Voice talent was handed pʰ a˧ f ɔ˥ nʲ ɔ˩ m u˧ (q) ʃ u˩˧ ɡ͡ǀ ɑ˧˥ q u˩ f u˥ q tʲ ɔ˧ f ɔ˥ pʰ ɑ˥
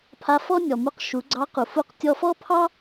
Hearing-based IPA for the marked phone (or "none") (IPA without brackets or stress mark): q